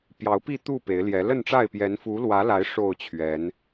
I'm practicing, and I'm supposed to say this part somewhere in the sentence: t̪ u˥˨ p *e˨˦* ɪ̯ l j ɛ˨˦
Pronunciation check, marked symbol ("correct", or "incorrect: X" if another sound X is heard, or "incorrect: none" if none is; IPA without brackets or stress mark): correct